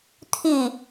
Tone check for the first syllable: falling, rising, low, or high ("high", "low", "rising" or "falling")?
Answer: falling